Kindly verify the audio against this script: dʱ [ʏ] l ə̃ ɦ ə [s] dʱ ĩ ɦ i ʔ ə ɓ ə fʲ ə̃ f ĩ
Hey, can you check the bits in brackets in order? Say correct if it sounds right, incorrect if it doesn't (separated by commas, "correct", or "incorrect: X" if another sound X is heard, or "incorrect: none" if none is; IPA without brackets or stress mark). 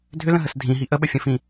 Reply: correct, correct